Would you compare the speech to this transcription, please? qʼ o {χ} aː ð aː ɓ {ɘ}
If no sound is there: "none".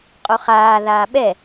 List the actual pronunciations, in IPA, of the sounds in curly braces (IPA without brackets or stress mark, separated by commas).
χ, ɛ